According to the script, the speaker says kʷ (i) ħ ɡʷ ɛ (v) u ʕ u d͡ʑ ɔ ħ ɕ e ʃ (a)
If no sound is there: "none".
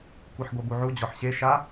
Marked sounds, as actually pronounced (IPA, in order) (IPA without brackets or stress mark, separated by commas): i, b, a